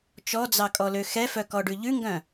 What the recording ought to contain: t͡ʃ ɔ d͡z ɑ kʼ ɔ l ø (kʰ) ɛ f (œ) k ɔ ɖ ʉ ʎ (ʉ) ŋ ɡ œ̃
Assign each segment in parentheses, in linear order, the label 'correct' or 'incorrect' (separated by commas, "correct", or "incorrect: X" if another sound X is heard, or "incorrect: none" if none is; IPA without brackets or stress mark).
incorrect: x, correct, correct